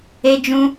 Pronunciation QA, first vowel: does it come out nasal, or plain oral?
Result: oral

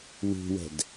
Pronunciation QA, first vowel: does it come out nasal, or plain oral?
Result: oral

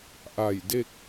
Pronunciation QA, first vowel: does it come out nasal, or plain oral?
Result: oral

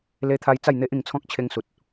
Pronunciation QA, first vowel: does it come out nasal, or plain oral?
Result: oral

